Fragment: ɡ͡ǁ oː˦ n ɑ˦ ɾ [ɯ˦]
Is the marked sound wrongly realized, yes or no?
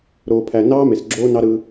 no